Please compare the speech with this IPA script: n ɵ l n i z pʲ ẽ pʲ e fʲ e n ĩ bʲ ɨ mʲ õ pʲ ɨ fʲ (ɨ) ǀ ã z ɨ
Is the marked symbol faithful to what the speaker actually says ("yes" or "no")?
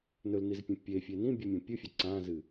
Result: no